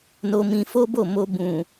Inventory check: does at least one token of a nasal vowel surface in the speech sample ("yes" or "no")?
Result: yes